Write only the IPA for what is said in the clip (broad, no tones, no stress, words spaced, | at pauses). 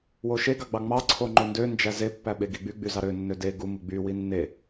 woʃeɡɑ ɡ͡bɑŋ͡mɑǀʰo ŋ͡ǃondønd͡ʒæ zepːæ ɓeɡiɡ͡by ɡ͡byzɑɾø nːøde ɡumu ɡ͡by winːe